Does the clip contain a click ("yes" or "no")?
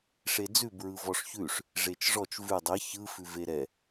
no